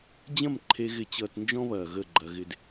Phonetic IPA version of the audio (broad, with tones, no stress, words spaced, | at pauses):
d͡ʑɐ̃˦˨mǃʰe˧ ɣɪ˧t͡ɕʌː˧tnd͡ʒɔ̃˦βɐː˨ ɣə˦˨ɡ͡ǃɐ˧ɣɪ˧d